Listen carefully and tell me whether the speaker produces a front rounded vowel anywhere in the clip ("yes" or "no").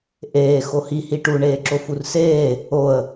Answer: no